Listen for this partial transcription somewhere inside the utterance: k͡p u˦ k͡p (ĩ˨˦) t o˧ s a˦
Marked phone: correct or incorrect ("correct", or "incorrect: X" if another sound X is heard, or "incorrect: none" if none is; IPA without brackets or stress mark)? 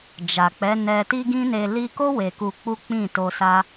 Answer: incorrect: ĩ˦˨